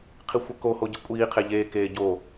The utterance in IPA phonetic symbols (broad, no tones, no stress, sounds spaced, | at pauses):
qʰ i xʷ ɐ k o h o ɟ ɨ kʷʼ iː qʰ e ʎ eː k eː ɟ o